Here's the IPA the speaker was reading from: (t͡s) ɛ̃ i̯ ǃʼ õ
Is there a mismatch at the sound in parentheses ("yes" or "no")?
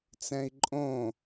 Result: no